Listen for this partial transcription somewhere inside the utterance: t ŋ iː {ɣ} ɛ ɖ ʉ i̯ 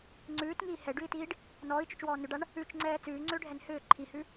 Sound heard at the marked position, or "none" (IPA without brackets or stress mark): h